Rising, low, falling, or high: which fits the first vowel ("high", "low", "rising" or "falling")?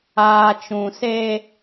low